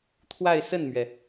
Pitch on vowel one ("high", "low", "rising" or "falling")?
falling